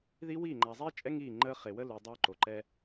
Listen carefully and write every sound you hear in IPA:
ði˦wiː˦˨ ŋ͡ǃa˨zˤiː˦t͡ʃʼɛ˦ ŋiː˦˨ ŋ͡ǃəː˦ χe˨wə˦lu˨ dˤøː˦ǃo˨ǃɛ˦

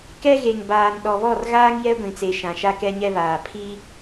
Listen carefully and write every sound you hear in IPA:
kɛ˦ɣe˨ŋbaː˨n ɗɔ˨βɔ˦˨rɣaː˦ŋ jɛ˦ɡʷĩ˨t͡se˨ ʃã˨ʃa˦kɛ˦ ɲɛ˦βaː˨ pʰi˦

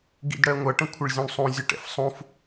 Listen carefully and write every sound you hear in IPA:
ɡḭdɽɜŋʷʌ ʈə̃kʷʰɪɭzʲũɳsˤũ zʲʊʈɛ̰fsˤũf

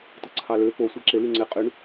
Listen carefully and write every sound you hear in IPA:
tɯǀʰɑlø po sʷæǁe lyŋ͡ǀe qʼyɳ

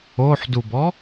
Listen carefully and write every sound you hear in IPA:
oħdubɔ

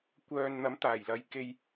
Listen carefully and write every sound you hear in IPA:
kʷœː˨nn̪ɐ˨˥m t̪aː˨˩jlɐ˨˥j ke˨j

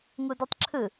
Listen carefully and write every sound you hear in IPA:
ŋuditˤǁʰɯ

